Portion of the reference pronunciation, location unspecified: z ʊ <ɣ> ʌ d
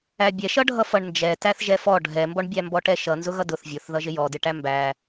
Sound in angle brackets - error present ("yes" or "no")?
no